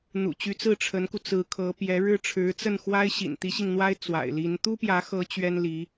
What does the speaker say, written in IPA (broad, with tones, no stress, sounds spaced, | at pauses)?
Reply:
n̪ ṵ˨˩ t͡ɕ y˧˥ t͡s ɹ̩˥˩ ʈ͡ʂʰ ə˧˥ n k u˧ t͡s ɹ̩˧˥ kʰ ɤ˧˥ p j ɛ˧˥ ɻ ɻ̩˥ ʈ͡ʂʰ ɻ̩˧˥ t͡s ə˥˩ n x w a˥ ɪ̯ ɕ ḭ˨˩ n t̪ i˧˥ ɕ i˧ ŋ n̪ w a˥ ɪ̯ t͡s w a̰˨˩ ɪ̯ l i˧˥ n t̪ u˥ p j ä˧˥ x ɤ˧˥ t͡ɕ ɥ ɛ˥ n l i˧˥